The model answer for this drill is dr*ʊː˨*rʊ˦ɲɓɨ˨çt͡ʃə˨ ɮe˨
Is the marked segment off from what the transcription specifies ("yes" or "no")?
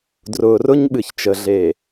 no